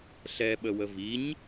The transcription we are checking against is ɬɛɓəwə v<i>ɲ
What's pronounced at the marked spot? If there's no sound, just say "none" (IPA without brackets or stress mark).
i